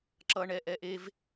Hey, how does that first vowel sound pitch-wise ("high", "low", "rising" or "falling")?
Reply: low